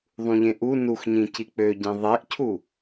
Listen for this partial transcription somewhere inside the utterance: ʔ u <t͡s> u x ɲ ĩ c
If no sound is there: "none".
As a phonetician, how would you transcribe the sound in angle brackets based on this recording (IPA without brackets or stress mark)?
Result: n